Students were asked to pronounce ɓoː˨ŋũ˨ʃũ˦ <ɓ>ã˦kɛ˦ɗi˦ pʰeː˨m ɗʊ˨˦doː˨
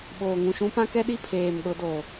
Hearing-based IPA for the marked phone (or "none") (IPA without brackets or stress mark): p